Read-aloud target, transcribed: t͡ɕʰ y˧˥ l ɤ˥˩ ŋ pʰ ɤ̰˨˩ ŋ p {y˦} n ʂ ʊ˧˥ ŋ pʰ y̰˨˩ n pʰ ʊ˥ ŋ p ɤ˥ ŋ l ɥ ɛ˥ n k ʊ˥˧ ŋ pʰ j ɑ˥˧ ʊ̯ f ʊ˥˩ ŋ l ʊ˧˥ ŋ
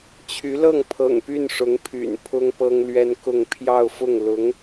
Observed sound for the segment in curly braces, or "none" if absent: y˥˩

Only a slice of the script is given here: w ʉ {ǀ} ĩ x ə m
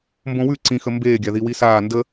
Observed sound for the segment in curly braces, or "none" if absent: ǀ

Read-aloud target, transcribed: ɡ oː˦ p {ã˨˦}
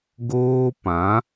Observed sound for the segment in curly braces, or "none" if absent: ã˨˦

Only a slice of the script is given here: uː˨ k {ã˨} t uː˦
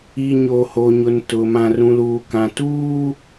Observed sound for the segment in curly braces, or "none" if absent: ã˨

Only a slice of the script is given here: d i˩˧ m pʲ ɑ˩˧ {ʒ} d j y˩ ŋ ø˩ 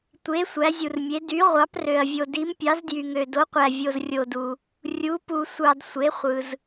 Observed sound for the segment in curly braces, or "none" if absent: z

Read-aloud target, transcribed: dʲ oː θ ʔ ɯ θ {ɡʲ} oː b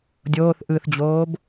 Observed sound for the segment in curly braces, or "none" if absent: d͡ʑ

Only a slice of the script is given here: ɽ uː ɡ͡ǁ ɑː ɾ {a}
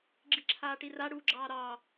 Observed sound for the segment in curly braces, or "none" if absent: ɑ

